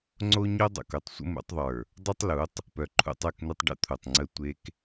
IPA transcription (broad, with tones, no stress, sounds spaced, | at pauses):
ŋ͡ǀ o˦ ɲ o˦ dˤ o̰˨ k o˦ tˤ sʷ ə̰˦ m ṵ˨˦ tˤ ðˤ ə˞˨ | dˤ u˦ tˤ l u˨˦ tˤ | p œ˨ ǃʰ ṵ˦ tˤ œ˦˨ k n u˦ tˤ ɖ ə̰˦ t̪ʰ u˨ tˤ ŋ͡ǀ ə˦ tʷ e˦ k